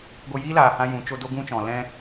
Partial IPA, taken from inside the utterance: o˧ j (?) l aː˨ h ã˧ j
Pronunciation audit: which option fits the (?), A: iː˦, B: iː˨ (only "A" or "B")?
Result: A